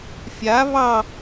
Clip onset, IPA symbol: fʲ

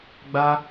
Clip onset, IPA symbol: ɡ͡b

